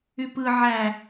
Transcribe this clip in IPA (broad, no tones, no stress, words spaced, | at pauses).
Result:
ypɯ ʕæ